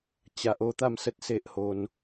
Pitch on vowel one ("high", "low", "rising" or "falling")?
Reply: low